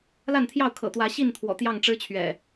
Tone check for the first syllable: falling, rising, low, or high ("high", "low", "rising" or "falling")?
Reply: falling